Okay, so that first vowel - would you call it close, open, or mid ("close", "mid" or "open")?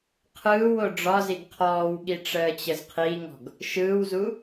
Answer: close